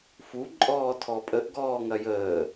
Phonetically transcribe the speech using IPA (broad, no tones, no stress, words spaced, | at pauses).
fuǃʼɔː tʰɔpʼəʔ ɡɔːŋɐjəː